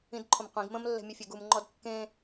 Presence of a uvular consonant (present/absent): present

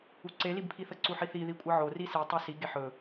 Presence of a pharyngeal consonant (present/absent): present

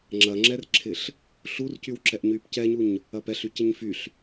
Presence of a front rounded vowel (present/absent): present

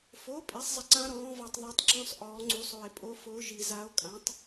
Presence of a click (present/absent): present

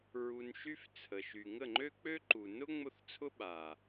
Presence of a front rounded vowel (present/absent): present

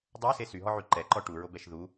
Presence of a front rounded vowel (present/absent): present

